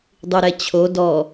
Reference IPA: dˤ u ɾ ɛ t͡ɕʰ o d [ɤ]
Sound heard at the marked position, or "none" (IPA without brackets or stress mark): ɔ